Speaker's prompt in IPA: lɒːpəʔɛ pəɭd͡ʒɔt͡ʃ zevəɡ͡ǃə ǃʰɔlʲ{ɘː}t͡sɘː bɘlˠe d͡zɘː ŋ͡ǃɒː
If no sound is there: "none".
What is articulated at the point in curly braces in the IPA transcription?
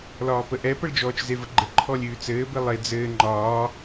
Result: ʉː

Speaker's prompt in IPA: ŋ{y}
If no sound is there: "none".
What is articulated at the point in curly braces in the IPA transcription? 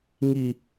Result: i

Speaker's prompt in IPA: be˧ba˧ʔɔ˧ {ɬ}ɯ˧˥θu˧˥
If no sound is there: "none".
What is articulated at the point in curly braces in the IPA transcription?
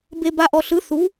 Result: ɬ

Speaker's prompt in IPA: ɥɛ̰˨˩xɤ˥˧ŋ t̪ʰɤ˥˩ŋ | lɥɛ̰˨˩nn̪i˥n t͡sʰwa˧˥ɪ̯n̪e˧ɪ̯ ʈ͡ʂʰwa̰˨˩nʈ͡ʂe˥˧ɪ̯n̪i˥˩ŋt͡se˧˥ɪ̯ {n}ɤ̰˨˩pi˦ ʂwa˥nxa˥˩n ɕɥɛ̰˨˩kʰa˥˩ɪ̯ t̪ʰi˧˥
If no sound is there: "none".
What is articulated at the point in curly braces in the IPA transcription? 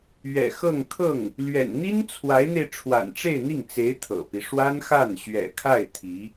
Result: t̪ʰ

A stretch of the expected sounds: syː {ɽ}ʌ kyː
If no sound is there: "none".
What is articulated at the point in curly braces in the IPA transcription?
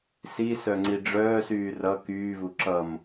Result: r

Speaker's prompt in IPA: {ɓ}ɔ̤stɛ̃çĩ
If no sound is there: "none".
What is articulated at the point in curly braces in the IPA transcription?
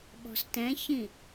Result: ɓ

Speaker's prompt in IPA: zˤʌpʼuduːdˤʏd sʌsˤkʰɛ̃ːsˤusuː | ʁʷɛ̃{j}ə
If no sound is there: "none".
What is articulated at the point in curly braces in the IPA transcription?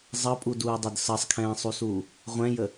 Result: j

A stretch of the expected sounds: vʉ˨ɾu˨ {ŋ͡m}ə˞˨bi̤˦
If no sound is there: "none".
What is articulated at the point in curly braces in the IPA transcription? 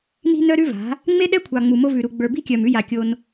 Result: ɡ͡b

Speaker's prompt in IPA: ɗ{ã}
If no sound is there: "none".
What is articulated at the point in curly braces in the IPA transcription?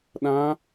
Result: ã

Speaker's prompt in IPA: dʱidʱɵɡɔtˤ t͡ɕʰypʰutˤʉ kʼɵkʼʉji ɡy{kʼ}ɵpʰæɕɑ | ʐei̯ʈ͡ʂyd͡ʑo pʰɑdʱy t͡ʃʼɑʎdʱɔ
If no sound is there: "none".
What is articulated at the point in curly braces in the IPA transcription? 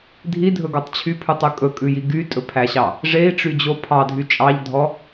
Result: tʼ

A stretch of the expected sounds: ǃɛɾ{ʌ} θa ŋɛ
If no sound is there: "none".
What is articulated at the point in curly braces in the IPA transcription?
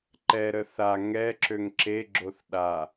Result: ə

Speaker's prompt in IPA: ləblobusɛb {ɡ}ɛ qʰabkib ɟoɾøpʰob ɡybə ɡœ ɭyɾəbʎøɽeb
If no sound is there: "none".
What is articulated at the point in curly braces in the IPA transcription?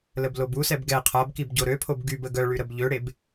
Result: ɡ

